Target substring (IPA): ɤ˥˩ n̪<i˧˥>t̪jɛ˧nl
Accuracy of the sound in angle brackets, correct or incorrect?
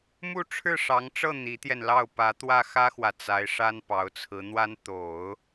correct